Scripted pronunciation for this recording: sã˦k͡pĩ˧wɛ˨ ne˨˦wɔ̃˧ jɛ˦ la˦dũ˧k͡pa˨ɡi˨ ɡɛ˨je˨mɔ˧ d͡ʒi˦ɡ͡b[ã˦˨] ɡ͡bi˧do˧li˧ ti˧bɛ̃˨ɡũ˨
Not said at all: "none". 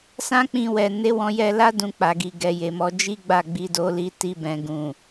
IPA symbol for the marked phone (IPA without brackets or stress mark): a˦˨